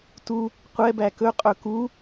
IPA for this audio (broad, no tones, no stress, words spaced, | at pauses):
tu | qʷɛbæ kɵqʼɵ ku